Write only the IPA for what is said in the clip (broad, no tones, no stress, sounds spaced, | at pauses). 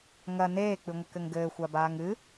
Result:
ŋ ɐ n eː k͡p ɨ ŋʷ ɘ k ɘ ŋ ɡ ɘː xʷ a b aː ŋ ɨ